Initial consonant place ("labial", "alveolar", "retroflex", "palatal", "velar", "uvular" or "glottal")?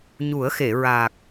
palatal